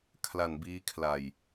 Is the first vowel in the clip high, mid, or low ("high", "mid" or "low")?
low